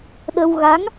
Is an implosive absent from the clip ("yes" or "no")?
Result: no